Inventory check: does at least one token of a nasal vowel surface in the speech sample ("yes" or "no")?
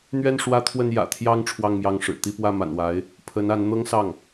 no